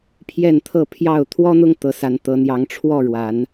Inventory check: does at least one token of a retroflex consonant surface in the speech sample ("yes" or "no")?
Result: yes